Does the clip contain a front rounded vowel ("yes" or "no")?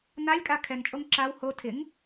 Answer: no